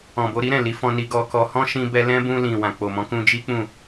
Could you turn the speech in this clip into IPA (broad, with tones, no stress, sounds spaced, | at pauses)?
ɔ̃˨ b o˧ ɾ i˦ ɾ ɛ̃˦˨ l i˨˦ f ɔ̃˧ n i˧ ɡ ɔ˧ k ɔ˧ h ɔ̃˦ ʃ ĩ˧ b ɛ˧ l ɛ̃˦ b ũ˧ l ĩ˨ w ã˨ k͡p o˨ m ɔ̃˨˦ k ũ˧ d͡ʒ i˦ k͡p ũ˦˨